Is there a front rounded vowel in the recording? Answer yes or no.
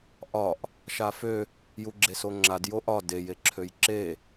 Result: yes